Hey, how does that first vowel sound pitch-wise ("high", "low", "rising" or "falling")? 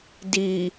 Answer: low